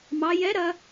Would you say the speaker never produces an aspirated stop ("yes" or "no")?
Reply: yes